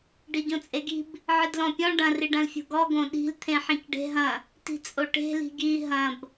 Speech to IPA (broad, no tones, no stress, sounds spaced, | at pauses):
ɖ i ɟ õ t͡sʼ e ɡ i̤ b | ʕ ɨ d l ɔ̃ pʲ ɔ̃ ɖ ɐ̃ r i ɖ ɐ̃ l fʲ o̤ ɡ ɔ ɡ õ ɗ i̤ l t̪ʰ ẽ ħ ĩ c ɖ e̤ ɦ ɐ̃ | t i̤ t͡sʼ o ʈ e̤ l i̤ ɡ i ɦ ɐ̃ b